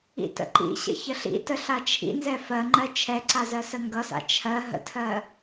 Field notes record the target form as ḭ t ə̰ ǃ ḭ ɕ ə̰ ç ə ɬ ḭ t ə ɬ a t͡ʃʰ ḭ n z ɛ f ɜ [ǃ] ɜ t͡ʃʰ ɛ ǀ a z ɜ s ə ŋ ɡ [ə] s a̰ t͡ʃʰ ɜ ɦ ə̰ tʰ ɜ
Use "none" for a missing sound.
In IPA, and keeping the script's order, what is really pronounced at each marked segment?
ŋ͡ǃ, ʌ

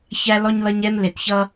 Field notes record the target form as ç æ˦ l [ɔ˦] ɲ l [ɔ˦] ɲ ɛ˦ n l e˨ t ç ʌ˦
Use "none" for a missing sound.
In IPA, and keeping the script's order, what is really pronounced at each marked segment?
ɔ˦, ʌ˦

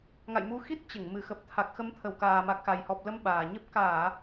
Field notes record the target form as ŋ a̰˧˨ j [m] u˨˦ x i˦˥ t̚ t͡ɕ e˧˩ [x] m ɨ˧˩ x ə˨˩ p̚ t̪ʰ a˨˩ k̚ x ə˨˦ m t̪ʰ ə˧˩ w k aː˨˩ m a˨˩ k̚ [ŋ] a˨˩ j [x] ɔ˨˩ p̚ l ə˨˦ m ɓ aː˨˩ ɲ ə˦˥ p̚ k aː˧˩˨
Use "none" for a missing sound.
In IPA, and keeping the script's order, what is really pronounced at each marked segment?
m, ŋ, x, h

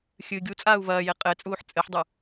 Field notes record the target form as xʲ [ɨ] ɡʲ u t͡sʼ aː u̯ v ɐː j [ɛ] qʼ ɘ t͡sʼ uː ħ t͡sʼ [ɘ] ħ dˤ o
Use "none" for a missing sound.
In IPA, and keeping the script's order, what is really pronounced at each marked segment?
ɨ, e, ɘ

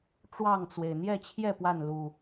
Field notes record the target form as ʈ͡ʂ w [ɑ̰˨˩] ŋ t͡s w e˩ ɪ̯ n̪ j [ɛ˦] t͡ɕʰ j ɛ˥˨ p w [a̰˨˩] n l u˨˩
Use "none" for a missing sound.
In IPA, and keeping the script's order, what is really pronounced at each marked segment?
ɑ˥˨, ɛ˥˨, a˥˨

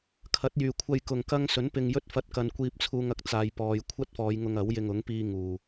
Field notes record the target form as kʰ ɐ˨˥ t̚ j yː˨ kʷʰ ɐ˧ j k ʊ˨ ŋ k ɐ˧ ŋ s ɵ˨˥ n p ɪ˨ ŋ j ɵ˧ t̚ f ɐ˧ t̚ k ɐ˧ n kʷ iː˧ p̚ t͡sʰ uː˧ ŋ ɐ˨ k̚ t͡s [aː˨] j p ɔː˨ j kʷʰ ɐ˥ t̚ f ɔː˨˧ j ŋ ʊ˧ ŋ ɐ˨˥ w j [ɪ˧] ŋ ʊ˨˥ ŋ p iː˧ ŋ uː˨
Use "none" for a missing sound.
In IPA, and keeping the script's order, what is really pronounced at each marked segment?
aː˨, ɪ˧

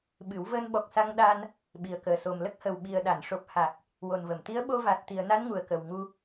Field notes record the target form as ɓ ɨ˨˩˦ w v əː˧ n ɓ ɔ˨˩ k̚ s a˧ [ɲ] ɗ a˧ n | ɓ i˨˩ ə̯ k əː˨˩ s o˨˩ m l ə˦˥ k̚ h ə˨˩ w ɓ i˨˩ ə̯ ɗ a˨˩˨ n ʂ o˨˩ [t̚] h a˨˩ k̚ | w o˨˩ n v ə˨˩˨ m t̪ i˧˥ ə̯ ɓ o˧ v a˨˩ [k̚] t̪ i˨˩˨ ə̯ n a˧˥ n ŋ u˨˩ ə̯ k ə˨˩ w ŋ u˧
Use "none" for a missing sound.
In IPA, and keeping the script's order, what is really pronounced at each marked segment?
ŋ, p̚, t̚

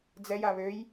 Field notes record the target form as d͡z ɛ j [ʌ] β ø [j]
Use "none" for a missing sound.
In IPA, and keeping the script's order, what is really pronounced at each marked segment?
a, j

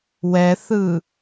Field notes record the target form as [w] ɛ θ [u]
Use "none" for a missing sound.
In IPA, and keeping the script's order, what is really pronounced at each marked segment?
w, ɯ

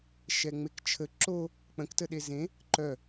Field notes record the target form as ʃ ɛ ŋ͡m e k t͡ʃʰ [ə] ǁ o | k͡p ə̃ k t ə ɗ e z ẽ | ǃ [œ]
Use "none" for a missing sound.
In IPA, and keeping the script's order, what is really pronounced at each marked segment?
ə, œ

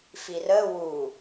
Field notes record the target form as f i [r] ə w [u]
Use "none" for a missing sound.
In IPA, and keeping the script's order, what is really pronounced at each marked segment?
r, u

